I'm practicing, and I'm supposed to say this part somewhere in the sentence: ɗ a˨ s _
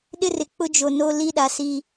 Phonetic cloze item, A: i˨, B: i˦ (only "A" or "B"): B